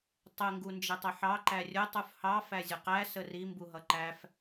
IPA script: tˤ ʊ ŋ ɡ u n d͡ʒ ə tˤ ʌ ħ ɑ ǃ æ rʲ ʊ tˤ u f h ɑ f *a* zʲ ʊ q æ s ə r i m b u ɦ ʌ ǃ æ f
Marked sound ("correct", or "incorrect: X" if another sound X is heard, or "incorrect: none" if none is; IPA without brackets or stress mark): incorrect: æ